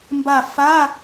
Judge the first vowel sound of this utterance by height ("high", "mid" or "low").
low